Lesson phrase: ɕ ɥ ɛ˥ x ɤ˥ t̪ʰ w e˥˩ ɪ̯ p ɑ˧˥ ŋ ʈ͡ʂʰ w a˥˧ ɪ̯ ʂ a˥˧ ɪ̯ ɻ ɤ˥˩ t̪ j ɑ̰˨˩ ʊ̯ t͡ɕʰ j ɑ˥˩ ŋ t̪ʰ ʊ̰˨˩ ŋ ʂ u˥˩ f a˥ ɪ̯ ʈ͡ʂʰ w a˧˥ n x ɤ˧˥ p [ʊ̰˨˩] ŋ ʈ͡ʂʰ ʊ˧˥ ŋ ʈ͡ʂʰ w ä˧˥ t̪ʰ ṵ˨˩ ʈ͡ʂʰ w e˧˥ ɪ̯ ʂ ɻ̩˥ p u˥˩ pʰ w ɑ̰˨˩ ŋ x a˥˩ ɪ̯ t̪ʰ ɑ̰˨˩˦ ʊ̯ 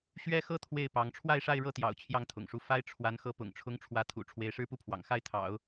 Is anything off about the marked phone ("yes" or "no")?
no